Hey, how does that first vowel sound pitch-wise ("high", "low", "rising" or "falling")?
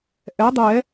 rising